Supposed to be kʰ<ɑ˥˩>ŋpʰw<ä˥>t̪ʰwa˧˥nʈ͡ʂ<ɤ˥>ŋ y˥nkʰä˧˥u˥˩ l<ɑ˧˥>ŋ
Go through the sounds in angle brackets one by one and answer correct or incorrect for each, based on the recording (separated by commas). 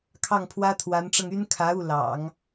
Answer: correct, correct, incorrect, incorrect